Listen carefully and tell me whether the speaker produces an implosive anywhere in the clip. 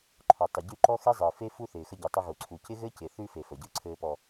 no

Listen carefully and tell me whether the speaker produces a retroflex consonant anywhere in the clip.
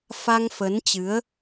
no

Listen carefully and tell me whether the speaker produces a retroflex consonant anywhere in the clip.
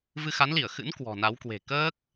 no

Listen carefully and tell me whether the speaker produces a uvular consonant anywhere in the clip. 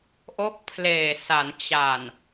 no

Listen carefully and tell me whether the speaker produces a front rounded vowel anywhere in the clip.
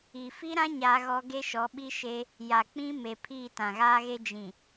no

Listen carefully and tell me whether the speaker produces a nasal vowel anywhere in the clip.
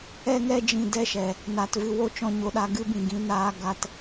yes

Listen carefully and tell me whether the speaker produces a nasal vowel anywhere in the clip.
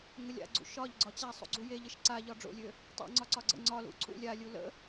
no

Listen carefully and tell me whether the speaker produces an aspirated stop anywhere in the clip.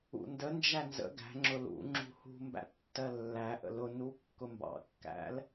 no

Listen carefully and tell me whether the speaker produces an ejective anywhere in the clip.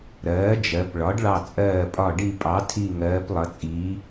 yes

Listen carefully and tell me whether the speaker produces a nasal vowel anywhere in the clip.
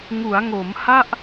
no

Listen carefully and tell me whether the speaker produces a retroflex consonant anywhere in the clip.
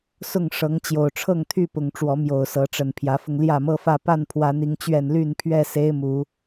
yes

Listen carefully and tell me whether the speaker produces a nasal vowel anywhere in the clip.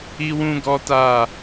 yes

